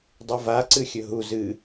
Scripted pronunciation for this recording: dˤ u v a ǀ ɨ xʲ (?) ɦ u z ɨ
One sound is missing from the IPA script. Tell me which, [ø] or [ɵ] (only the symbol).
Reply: ɵ